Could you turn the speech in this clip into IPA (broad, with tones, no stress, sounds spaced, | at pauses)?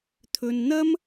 t̪ʰ ɵ˧ n n̪ ɐ˥ m